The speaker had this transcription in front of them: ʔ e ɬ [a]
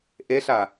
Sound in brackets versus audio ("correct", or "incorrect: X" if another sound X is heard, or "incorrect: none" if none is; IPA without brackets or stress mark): correct